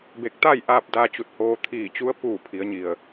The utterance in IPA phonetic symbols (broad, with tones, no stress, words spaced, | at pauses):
be˧˩k̚t̪a˥˨jʔaː˧p̚ daː˧t͡ɕu˧˩t̚ hoː˧t̪ʰiː˧˩t͡ɕu˧˥ə̯ puː˧˩ pʰi˩˧ə̯ɲi˩ə̯